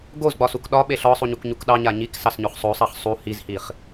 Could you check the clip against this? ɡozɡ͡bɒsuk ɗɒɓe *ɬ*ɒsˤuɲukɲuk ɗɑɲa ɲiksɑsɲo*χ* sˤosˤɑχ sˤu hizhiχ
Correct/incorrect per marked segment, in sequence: correct, correct

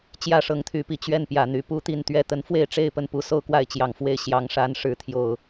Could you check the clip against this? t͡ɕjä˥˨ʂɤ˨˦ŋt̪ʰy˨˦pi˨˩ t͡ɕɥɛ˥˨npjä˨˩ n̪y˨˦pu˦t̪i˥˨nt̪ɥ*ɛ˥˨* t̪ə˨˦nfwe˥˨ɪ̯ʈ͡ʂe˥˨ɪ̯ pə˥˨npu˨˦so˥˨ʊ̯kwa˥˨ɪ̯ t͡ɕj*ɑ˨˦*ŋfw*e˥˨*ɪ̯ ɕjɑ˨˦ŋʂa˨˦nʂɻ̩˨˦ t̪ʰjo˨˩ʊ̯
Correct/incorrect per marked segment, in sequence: correct, incorrect, correct

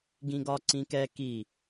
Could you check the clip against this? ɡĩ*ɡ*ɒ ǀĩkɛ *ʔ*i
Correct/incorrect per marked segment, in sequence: correct, incorrect

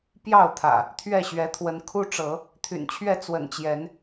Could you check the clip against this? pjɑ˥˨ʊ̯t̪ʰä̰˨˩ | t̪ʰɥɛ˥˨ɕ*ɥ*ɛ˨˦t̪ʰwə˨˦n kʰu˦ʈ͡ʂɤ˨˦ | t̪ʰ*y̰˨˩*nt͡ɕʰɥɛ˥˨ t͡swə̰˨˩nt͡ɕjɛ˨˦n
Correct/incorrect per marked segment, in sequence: correct, correct

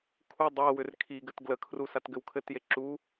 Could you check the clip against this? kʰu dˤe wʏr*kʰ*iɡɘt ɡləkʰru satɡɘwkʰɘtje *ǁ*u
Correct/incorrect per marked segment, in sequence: correct, correct

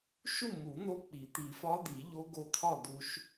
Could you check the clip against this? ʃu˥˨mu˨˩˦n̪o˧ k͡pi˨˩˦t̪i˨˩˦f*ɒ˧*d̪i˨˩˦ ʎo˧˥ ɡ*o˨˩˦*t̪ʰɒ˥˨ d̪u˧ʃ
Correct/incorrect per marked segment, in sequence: incorrect, incorrect

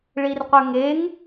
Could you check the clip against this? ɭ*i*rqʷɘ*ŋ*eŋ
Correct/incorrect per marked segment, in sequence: correct, correct

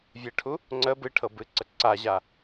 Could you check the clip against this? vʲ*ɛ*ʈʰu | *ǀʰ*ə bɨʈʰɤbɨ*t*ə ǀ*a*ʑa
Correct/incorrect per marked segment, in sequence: incorrect, incorrect, incorrect, correct

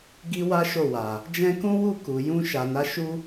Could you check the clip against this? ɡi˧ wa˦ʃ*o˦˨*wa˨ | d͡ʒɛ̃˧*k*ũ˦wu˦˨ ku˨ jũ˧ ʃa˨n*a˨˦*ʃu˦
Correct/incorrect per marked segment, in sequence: correct, correct, correct

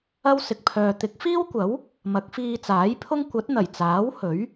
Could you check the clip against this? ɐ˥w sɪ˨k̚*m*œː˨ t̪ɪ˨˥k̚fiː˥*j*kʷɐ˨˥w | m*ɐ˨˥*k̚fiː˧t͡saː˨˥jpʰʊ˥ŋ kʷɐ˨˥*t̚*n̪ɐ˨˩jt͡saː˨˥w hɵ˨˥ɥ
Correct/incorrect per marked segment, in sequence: incorrect, incorrect, correct, correct

